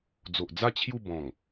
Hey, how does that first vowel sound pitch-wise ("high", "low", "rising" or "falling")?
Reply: low